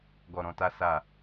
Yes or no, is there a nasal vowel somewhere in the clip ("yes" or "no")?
yes